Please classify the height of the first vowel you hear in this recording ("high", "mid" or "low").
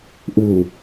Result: high